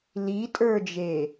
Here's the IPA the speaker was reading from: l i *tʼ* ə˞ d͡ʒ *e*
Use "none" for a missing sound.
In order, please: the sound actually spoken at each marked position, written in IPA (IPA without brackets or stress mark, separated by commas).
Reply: tʼ, e